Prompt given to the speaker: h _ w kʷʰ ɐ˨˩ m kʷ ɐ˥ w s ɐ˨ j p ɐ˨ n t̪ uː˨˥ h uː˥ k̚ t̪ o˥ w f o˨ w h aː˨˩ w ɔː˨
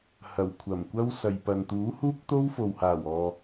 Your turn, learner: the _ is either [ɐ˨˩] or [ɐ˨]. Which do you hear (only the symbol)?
ɐ˨˩